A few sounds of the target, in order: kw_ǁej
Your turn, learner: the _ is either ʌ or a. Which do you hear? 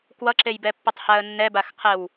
ʌ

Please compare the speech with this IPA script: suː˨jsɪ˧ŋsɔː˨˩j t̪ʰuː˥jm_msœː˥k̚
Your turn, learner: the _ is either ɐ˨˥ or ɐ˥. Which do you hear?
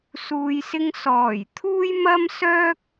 ɐ˥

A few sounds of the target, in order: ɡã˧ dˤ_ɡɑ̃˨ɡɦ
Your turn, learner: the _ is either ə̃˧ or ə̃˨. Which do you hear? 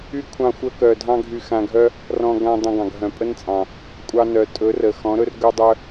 ə̃˧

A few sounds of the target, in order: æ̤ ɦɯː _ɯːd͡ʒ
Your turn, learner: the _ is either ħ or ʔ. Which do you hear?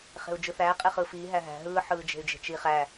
ħ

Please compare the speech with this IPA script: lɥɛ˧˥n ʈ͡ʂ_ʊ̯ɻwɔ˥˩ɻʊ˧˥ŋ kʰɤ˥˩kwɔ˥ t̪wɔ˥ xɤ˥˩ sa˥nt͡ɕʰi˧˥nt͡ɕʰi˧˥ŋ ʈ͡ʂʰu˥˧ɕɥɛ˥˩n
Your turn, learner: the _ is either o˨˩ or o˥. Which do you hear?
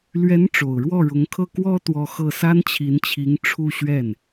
o˨˩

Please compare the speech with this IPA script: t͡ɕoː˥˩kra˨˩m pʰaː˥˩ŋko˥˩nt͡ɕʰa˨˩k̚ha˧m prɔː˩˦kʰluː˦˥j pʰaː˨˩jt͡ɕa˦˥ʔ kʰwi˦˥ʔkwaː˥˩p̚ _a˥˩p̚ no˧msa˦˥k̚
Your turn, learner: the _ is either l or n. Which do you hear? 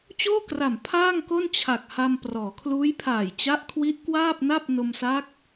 n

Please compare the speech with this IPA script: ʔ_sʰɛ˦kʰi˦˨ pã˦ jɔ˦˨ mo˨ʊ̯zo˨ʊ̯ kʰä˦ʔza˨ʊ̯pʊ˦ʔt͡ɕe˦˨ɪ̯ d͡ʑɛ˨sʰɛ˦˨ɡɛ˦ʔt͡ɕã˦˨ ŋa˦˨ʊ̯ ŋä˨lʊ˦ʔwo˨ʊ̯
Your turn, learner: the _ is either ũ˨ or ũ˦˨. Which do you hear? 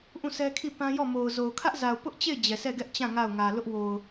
ũ˦˨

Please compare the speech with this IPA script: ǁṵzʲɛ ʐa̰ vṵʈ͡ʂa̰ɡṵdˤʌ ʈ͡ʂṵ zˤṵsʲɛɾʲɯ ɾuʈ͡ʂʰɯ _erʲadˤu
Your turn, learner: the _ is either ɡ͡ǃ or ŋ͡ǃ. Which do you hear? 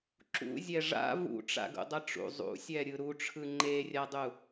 ŋ͡ǃ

